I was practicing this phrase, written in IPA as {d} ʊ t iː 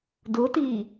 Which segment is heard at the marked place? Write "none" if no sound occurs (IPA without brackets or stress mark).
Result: d